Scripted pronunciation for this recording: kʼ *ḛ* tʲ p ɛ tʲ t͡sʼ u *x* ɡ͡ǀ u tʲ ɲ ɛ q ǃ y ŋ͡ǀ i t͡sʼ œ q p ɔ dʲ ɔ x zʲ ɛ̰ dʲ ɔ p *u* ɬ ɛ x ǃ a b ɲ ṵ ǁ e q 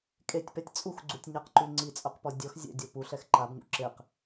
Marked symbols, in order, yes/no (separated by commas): no, yes, yes